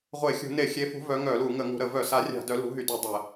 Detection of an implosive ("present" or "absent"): absent